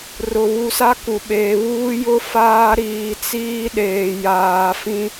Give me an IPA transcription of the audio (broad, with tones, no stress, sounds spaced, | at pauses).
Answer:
r ʊ˨ β u˨ s a˦ k u˨ ɓ eː˨ β uː˦ j ʊ˦ f aː˦ ɾ iː˨ t͡s iː˦ ɗ eː˨ j aː˨ f ĩ˦